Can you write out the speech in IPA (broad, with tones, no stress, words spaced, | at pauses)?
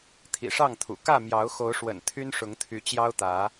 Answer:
t̪ʰḭ˨˩ʂɑ˥˨ŋt̪ʰṵ˨˩ kä˥˨mjɑ˨˦ʊ̯xo˨˦ʊ̯ʂwə̰˨˩n t̪ʰy˦nʂʊ˨˦ŋt̪ʰy˨˦ t͡ɕjɑ˦ʊ̯t̪ä˨˦